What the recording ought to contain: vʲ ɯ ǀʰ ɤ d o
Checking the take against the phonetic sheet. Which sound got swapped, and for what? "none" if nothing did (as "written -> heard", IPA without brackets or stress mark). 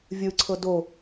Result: none